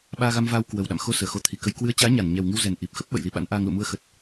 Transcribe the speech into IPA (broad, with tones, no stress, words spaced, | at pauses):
ɓaː˧ɣa˧mvaː˧w kwə˨˩wɗa̰˧˨mxo˧ səː˧˩xo˧t̪ʰi˨˩kə˧j kwɨ˨˦ə̯t͡ɕaː˨˦ ɲa˧˩n ɲɛ˨˩wŋɨ˧wzɛ˨˩n ʔi˨˩p̚xə˦˥p̚ ɓə̰˧˨j li˨˦ɓa̰˧˥n ʔaː˧ŋ lṵ˧˨mu˧ə̯ xə˨˩t̚